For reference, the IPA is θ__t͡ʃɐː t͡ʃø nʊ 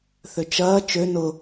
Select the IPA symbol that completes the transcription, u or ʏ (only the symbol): ʏ